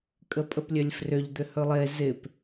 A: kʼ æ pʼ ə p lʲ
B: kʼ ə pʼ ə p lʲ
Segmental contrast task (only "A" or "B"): B